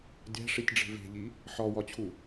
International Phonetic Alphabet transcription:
dʲ æ̤ ʂ i tʲ ɖ͡ʐ e̤ v e̤ ʎ i | ħ ɒ w ɒ t͡ɕʰ u

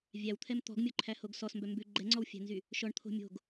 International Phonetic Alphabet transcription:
vʲ æ w t̪ʰ ɛ m t̪ ɔ̤ ɡ mʲ o ǃʰ æ h o ɡ s ɔ s m b œ m b ʉ ɡ͡ǃ ɛ ŋ͡ǀ ɔ w fʲ æ̤ n z y | ʃ ɔ ɳ t̪ʰ o̤ mʲ o̤ ɡ

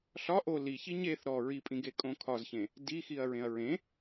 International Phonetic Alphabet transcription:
ɬ ɒ ʔ o l i ç i ɲ e θ ɾ ɔ ɹ i pʼ ĩ ɡ e kʼ õ kʰ ɒ z ç ẽ | d i x i ɐ̯ ɹ ẽ ɐ̯ ɹ ẽ

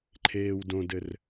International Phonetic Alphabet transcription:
ǃʰ eː w d õ d ɘ r

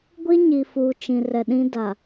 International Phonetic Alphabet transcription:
ɡʷ i˦ ɲ i˨ f uː˨ t͡ʃ ĩ˨ r ɛ˨ ɗ ĩ˦ d a˨

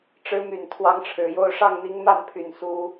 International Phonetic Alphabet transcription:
ʈ͡ʂ ɻ̩˧˥ m y˨˩ n t̪ʰ w ɑ˧˥ ŋ ʈ͡ʂʰ ɻ̩˨˩ j o˥˧ ʊ̯ ʂ ɑ˥˩ ŋ n̪ i˧˥ ŋ m a˥˩ n pʰ y˨˩ n s u˥

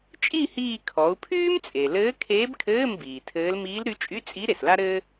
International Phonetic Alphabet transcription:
t͡ʃʼ i˥˧ h iː˥˧ kʰ ɔ˩˧ u̯ pʰ yː˥ m t͡sʼ e˩ l ɘː˧˥ kʰ eː˧˥ b kʰ ɘː˧˥˧ m b iː˩ tʰ ɘː˧˥ l m iː˧˥ l ɾ y˧˥ t͡ʃʼ y˧˥˧ t͡sʼ i˧˥ ɾ e˩ s l a˥ ɾ ɘː˥

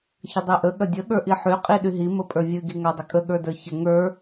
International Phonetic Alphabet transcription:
ç ə dˤ i ʔ ə ɠ ɐ dʲ ə ɠ ə˞ ʔ i ħ y qʼ i ɗ y ɦ i m ə pʼ ə˞ vʲ ɨ ɡ i ŋ a dˤ ə kʼ ə ɠ ə˞ d ə˞ ç ə ŋ ə˞

